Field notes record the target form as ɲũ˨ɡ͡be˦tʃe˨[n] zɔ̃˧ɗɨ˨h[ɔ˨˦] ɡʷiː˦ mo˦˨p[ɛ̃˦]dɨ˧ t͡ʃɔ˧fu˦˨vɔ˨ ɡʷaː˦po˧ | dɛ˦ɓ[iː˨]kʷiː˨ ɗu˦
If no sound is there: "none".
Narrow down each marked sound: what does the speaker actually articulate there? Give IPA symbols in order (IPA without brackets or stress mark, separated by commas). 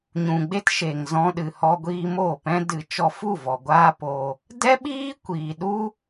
ŋ, ɔ˧, ɛ̃˦, iː˦